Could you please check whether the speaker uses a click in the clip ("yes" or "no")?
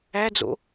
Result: no